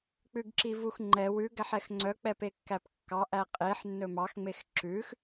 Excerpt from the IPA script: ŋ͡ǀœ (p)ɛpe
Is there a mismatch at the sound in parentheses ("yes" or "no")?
yes